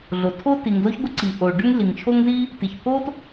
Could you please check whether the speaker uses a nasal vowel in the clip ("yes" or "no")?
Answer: no